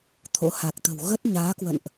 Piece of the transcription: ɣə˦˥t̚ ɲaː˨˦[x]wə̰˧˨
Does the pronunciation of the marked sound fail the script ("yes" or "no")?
yes